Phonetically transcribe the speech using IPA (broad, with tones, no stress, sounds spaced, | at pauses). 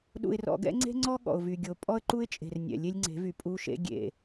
ɗ ṵ˨ ɪ̯ r ɔ̰˨ ɡ ɛ̰˦ ŋ͡ǀ e̤˦ ŋ͡ǀ ɔ˦ ɠ ɔ̰˨ ʊ̯ v y˨ ɡʲ o˨ pʼ ɔ˦ ə̯ ǃ u˦ ɪ̯ t͡ʃʼ e̤˨ r nʲ ɛ̰˨ lʲ e˦ lʲ ŋ͡ǀ e̤˨˦ v y˨ pʼ u˦ ʃ ḛ˦ ɡʲ ḛ˨